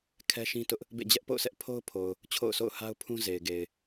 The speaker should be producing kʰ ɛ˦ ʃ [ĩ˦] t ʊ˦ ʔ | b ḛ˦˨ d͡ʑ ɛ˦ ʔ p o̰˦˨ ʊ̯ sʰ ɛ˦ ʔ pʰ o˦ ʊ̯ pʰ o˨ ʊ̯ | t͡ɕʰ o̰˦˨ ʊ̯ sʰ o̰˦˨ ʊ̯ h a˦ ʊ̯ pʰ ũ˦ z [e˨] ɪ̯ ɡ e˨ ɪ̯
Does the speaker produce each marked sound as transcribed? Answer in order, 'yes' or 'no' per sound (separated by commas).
yes, yes